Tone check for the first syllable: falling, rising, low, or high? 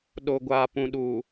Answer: low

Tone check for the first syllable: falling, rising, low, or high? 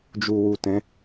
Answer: low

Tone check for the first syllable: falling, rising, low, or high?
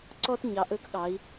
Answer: high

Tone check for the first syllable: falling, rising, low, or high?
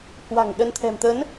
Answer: low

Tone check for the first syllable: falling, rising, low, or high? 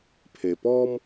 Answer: low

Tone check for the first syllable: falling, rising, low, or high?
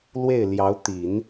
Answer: falling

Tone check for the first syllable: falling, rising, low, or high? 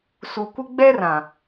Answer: low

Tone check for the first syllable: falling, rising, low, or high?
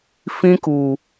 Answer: high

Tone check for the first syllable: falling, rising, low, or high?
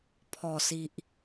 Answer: low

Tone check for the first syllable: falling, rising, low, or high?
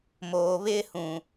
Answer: low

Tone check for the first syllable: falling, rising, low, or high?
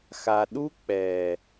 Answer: low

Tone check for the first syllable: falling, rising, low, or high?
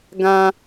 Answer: high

